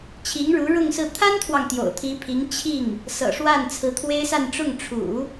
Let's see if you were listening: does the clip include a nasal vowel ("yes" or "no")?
no